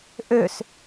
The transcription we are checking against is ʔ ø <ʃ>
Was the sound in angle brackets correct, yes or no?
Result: no